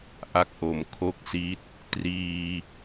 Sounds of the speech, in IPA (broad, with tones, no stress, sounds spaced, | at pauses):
ʔ a˦˥ k̚ ʔ o˨˩ m kʰ o˥˩ k̚ s i˦˥ t̚ | t r iː˧